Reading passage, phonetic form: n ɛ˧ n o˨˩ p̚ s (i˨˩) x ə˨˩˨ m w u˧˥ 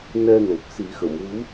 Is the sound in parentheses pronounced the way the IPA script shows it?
no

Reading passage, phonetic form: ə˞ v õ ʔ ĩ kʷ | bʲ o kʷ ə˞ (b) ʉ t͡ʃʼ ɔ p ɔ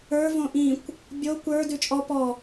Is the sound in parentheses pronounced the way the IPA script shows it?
no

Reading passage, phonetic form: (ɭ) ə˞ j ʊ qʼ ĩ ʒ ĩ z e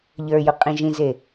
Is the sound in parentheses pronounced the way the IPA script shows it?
no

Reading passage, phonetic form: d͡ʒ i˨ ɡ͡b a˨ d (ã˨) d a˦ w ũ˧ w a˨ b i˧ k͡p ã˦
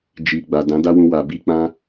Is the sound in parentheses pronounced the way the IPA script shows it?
no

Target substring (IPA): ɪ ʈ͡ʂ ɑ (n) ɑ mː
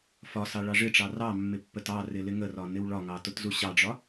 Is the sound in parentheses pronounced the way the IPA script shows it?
no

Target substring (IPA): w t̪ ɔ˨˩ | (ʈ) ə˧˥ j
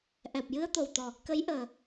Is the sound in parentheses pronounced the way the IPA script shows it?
no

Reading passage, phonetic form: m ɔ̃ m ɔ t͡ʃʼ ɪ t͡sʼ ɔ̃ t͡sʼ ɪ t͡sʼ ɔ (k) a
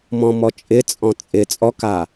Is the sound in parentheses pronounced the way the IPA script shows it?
yes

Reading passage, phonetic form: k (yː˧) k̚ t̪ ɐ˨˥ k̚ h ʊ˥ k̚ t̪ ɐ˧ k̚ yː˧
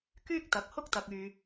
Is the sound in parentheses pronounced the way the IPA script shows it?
no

